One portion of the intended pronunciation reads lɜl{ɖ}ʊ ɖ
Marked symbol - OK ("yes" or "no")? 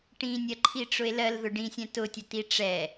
no